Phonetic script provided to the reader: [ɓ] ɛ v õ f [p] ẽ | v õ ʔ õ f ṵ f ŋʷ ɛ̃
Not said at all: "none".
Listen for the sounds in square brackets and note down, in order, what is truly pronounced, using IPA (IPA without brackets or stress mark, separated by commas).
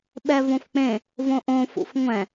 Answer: ɓ, k͡p